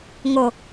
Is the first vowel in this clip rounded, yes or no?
yes